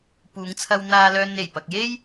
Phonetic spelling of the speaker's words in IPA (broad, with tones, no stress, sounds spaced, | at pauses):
p uː˨˧ ŋ t͡sʰ ɐ˧ w n̪ aː˧ l œː˧ n e˨˩ j p ɐ˨ k̚ j e˥ j